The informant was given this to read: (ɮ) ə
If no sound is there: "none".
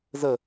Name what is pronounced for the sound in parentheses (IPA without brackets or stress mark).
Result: z